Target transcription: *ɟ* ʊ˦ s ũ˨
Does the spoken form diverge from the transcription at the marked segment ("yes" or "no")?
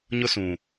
yes